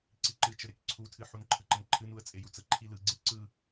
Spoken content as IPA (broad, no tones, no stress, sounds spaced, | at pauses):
ǀ i ǃ ɨ t͡ʃ ə ɾ e k ǀʰ u tʰ ɨ ħ u n ǃʰ ə ǃ ə n ǃʰ ɨ n u ə̯ t͡sʼ e j u t͡s ə ǃʰ i l ɯ ɡ͡ǀ e ǀ ɯ